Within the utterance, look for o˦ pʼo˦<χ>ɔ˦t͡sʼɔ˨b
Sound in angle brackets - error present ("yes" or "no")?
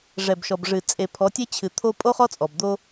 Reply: no